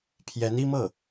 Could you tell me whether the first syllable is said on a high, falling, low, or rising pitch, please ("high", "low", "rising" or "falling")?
rising